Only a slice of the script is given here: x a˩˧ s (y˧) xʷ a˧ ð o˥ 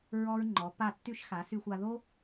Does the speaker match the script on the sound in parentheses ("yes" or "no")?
yes